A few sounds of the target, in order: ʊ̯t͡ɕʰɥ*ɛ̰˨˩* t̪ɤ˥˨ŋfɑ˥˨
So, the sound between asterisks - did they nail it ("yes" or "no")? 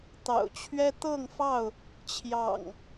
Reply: no